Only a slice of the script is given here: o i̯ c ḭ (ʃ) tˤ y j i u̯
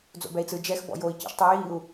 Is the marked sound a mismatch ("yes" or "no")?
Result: no